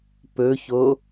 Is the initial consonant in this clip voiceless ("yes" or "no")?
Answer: yes